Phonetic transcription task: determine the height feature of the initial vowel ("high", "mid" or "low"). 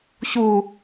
high